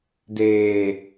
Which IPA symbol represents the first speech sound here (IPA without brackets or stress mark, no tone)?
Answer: d